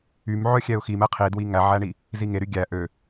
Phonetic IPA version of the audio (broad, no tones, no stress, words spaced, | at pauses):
ym ʕœxʲɛʊ̯xim ɛqʰidwi ŋæʕæɳi | ziŋeɾy ɡʲæ ʔø